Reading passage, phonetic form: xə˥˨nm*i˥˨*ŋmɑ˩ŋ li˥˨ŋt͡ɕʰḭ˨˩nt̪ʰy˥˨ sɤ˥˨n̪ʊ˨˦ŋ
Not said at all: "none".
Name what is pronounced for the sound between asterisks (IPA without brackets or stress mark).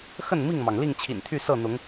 i˥˨